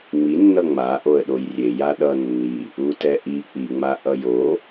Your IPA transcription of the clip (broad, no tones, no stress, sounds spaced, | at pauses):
ŋ͡m i nː ʌ ŋ͡m a ʔ o ə̯ ɗ o j rʲ e j a ɗ ʌ nː i | u t ɛ ʔ i k͡p i ŋ͡m a ʔ ʌ j o